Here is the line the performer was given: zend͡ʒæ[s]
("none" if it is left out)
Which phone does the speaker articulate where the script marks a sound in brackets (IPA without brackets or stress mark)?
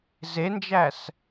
s